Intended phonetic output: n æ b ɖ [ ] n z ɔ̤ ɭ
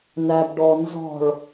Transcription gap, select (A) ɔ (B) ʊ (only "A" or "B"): A